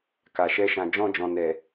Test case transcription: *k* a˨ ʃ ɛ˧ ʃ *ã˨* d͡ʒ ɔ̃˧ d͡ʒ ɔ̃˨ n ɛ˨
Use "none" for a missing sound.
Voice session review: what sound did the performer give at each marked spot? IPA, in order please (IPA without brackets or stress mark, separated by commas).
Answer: k, ã˨